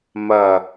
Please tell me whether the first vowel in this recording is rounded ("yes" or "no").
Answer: no